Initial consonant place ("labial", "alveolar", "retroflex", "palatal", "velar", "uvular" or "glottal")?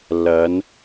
alveolar